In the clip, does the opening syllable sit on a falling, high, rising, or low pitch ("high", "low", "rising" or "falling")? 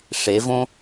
rising